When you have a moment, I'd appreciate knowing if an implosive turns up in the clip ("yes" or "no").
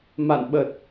yes